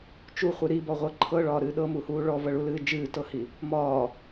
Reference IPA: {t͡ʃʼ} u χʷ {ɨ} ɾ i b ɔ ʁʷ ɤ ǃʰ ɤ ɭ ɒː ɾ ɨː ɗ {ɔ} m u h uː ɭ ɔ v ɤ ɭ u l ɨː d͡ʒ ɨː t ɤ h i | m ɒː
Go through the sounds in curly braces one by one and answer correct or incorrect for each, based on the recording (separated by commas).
incorrect, correct, incorrect